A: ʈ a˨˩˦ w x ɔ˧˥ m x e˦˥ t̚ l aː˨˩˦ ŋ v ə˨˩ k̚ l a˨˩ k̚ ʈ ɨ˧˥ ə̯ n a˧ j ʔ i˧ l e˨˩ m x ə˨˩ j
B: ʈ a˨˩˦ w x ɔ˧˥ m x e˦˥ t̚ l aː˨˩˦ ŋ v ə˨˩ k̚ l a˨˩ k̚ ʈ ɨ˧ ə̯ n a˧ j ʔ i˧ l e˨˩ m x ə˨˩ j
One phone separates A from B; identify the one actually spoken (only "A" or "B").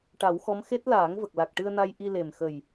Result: B